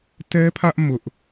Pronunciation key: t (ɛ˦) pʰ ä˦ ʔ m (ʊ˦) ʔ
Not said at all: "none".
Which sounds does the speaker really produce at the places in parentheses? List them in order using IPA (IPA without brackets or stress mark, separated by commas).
ɛ˦, ʊ˦